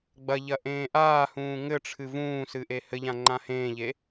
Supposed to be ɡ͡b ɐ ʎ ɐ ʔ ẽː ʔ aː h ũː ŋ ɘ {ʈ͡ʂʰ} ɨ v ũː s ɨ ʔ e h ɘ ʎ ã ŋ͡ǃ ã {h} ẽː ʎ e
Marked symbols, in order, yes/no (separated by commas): yes, yes